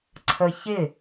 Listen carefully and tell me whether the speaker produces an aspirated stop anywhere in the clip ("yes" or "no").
yes